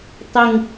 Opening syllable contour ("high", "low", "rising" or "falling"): low